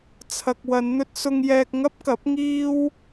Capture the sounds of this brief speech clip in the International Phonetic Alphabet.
t͡sʰ ɐ˨ k̚ w ɐ˨˧ n n̪ ɵ˧ t̚ s ʊ˧ ŋ j ɛː˧ k̚ ŋ ɐ˥ p̚ k ɐ˨˥ p̚ ŋ iː˥ w

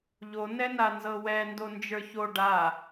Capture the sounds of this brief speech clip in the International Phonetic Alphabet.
ʎ o n ɛ n a n z ɤ w ɛ n d o n d͡ʒ ə˞ ç o ɖ a

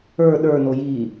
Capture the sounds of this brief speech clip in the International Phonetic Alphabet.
ə˞ ɗ ə˞ n o j i

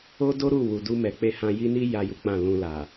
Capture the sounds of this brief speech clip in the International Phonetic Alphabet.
o˦ d o˦ ɾ u˦˨ w u˨ d u˧ m ɛ˨ k͡p e˧ h ã˧ j i˦ n i˦ j a˦ j u˦ k͡p ã˦˨ l ũ˧ l a˨

